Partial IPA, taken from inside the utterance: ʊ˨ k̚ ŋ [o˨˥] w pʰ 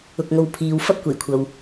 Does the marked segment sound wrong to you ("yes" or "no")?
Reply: yes